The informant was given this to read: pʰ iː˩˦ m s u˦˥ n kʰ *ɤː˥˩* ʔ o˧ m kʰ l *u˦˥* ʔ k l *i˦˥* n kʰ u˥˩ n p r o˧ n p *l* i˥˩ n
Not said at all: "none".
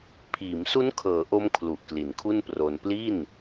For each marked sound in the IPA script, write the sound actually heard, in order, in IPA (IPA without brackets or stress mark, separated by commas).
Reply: ɤː˩˦, u˨˩, i˩˦, l